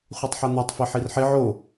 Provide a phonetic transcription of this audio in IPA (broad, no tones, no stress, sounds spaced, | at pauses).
χʷ e tˤ ħ a n̪ a tˤ f e ħ i r ħ e ʕ o